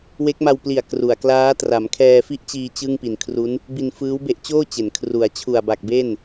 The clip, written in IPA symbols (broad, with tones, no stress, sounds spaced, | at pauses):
w e˦˥ k̚ m a˧ w p l i˨˩ a̯ k r u˨˩ a̯ k l aː˦˥ t r a˩˦ m kʰ ɛː˧ f i˥˩ ʔ t͡ɕ iː˧ t͡ɕ ɯ˥˩ ŋ p i˨˩ n kʰ r u˦˥ n | b i˧ n f ɯː˦˥ w b e˦˥ ʔ t͡ɕ oː˥˩ t͡ɕ e˩˦ n kʰ r u˩˦ a̯ t͡ɕʰ u˨˩ a̯ b a˨˩ k̚ b e˥˩ n